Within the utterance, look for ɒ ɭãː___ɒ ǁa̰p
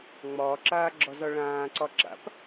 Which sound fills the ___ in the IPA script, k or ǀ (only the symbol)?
ǀ